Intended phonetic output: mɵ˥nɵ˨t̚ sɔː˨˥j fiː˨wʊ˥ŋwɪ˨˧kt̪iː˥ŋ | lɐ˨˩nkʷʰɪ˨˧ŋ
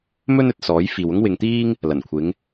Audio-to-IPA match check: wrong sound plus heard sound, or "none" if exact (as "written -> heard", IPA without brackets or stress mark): k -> ŋ